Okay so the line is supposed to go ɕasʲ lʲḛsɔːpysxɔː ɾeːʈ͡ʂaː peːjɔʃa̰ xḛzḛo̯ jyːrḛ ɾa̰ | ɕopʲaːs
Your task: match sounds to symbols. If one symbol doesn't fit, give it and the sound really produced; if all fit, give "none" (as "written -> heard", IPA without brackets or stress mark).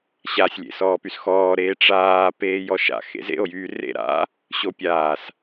none